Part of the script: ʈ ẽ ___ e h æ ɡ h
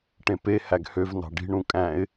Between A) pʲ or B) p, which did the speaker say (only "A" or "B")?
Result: B